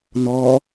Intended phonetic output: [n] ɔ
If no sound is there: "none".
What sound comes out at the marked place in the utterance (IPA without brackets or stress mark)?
n